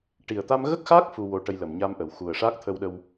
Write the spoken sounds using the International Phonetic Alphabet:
ʈ i˨˩ ə̯ t̪ a˧ m ɣ ə˦˥ k̚ x aː˦˥ k̚ f u˧ w o˧ ʈ ə˧ j l ə˨˩ m ɲ a˧ m ʔ ə˨˩˨ w x u˨˩ ə̯ ʂ aː˦˥ k̚ t̪ʰ ə˧ w ɗ ə˧ w

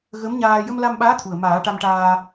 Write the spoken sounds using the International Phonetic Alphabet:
ɣ ə˧˥ m ɲ aː˧ j ə˧ m l a˧ m ɓ aː˧˥ t̪ʰ u˨˩ ə̯ m aː˨˩˦ ʈ a˧ m ʈ aː˧

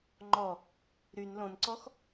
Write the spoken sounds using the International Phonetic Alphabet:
ŋ͡ǃ ɔ | ɾ y n l õ n ǀ ɔ x

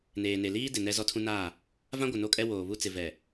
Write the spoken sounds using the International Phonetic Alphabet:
n eː˨ n e˨ l iː˦ d ɪ˨ n ɛ˦ z ɔ˦ tʰ ũ˦ n aː˦˨ | v ã˦ ɡʷ ɪ˨ n o˦ kʼ ɛ˦ w oː˨ β u˦ t͡s ɪ˨ v ɛ˨

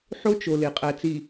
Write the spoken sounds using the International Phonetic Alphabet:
ħ o˦ t͡ʃ o˨ l e˨ qʼ æ˨ t͡s i˨

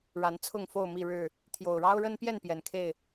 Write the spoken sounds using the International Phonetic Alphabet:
ɻ a˨˦ n t͡sʰ ʊ˥˨ ŋ f o˥˨ ʊ̯ m i˥˨ ɻ ɻ̩˥˨ | t̪ʰ j o˨˩ ʊ̯ ɻ ɑ˦ ʊ̯ ɻ ə˦ n p j ɛ˥˨ n p j ɛ˨˩ n kʰ e˥˨ ɪ̯

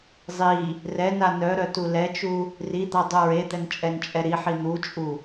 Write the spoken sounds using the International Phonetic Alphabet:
zˤ i | r ɛ n a n œ ɾ œ t u l ɛ t͡ʃ u | r i d̪ a dˤ u ɹ e d̪ ɛ n t͡ʃʼ ɛ n t͡ʃʼ ɛ ɾ i ħ i n̪ u t͡ʃʼ u

